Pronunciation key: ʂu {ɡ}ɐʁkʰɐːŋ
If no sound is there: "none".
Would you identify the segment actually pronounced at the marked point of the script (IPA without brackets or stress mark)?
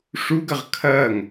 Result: ɡ